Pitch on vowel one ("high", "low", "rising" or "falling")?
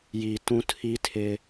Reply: low